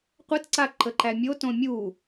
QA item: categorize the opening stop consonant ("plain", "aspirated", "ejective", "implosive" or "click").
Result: plain